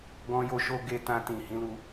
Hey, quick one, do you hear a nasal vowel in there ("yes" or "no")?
yes